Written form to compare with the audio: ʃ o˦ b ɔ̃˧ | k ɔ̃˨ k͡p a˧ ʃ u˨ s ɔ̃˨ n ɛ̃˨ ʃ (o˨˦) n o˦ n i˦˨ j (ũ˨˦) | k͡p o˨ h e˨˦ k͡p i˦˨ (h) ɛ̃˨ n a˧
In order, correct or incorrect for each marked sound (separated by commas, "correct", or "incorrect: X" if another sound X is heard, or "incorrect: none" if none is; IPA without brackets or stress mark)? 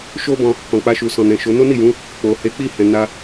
correct, correct, correct